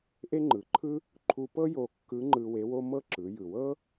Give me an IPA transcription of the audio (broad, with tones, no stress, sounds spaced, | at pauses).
ʔ e˥ ŋ͡ǃ ɯ˩˧ ǃʰ ɯ˥ | ǃʰ u˧ p ɤ˥ j o˧ kː ɯ˧˥ ŋ͡ǃ ɯ˧ w e˧˥ w o˥ m ɤ˥ ǁ ɯ˩˧ j ɯ˩ w ɤ˥